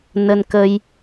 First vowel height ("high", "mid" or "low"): mid